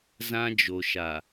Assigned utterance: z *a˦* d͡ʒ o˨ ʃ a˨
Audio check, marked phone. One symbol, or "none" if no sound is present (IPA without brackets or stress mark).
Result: ã˦